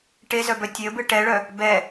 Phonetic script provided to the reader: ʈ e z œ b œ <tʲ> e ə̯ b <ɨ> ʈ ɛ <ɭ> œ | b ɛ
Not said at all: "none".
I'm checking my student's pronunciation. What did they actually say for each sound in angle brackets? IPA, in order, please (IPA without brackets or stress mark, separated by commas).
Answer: tʲ, ɨ, ɭ